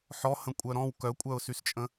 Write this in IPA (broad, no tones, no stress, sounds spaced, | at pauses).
ħ ɔ h ə̃ kʷʼ œ ɾ ɔ̃ w k œ kʷʼ œ ʊ̯ s y s t͡ʃʼ ə̃